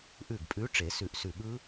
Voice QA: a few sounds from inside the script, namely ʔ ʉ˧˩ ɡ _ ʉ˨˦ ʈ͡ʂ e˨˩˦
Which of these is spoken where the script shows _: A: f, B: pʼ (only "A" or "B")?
B